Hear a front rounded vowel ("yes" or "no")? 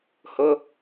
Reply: no